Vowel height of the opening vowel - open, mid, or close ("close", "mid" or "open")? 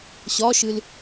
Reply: open